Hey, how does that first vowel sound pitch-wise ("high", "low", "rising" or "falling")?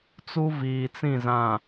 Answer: high